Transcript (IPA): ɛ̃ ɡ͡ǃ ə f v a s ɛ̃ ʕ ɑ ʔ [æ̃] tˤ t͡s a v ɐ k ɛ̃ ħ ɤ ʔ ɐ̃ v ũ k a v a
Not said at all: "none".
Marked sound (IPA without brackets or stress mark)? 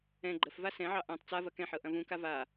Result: ɛ̃